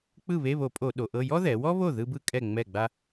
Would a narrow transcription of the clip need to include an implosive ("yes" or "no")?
yes